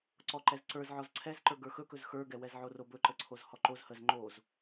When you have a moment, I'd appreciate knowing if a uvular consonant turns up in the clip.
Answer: no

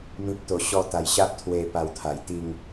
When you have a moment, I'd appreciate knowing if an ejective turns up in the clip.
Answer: no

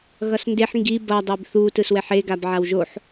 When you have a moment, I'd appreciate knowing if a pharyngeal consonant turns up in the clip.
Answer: yes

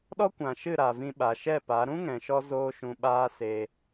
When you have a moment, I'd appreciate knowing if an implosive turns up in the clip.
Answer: yes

